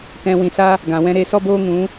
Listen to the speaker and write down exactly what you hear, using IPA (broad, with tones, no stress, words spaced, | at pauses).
tɛ̃˧ wĩ˨sa˦ | ɡã˨wɛ̃˧ ɾe˧sɔ˦boː˦ŋũ˨˦